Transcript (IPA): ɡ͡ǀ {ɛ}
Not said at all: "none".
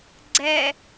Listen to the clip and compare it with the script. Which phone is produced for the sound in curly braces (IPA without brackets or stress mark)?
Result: ɛ